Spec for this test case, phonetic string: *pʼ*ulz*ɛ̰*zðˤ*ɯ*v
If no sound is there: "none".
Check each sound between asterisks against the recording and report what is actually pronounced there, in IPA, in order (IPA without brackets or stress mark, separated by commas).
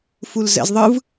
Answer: f, ɛ̰, ɯ